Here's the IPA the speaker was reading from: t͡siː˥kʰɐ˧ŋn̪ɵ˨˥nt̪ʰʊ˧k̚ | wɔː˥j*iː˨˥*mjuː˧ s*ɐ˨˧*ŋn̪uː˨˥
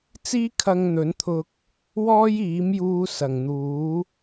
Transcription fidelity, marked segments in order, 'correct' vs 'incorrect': correct, incorrect: ɐ˨˩

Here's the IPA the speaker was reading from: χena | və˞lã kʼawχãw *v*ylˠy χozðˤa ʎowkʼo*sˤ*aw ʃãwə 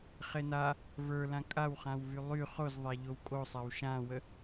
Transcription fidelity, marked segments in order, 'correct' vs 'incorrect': correct, correct

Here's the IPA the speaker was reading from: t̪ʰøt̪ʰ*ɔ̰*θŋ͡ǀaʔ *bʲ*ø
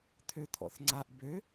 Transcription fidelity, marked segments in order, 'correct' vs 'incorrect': correct, incorrect: b

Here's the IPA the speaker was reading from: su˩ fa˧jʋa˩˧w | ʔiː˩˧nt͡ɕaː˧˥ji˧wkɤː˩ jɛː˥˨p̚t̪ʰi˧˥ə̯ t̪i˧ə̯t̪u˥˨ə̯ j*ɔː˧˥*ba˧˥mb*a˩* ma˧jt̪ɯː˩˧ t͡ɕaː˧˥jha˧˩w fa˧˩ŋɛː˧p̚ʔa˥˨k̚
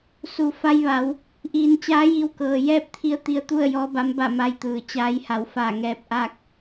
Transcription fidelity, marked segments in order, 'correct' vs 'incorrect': correct, incorrect: a˥˨

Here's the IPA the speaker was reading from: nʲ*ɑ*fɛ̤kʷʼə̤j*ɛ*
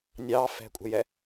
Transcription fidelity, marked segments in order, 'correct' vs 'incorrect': correct, correct

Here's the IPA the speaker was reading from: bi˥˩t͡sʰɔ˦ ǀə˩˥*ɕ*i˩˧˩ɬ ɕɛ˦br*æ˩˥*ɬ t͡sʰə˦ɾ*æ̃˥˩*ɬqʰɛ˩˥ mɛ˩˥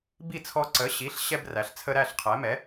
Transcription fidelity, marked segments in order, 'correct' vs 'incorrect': correct, incorrect: æ˩˧, incorrect: æ˥˩

